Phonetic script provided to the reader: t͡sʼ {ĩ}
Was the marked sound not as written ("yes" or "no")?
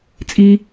yes